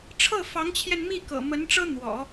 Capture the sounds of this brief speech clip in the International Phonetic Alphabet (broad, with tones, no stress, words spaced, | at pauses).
ʈ͡ʂʰɤ˥˩fɑ˧˥ŋt͡ɕʰjɛ˧nmi˥˩ kɤ̰˨˩ mə˧˥nʈ͡ʂɤ˥ n̪wɔ̰˨˩˦